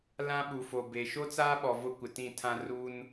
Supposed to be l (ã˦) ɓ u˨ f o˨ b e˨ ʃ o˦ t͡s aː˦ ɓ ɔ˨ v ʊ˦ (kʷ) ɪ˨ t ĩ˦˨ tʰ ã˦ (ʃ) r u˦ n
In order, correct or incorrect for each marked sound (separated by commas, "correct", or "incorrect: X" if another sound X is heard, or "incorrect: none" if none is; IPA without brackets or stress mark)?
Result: correct, correct, incorrect: none